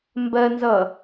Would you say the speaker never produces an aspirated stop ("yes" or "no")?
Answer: yes